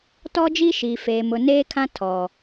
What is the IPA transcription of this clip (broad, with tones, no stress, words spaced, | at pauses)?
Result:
tɔ˦d͡ʒi˦ ʃiː˨feː˨ mʊ˨neː˦kʰã˦ tʰɔ˨